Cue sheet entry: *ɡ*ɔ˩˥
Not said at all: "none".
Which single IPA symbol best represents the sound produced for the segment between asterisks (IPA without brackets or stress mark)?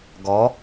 ɡ